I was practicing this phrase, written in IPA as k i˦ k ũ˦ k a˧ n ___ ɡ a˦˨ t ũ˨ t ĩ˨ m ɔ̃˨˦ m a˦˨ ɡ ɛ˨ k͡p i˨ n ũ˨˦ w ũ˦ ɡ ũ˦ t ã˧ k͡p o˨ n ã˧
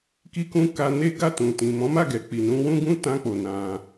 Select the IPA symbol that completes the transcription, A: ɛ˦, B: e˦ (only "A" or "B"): B